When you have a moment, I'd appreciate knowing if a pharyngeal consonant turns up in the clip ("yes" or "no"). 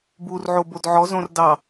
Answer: yes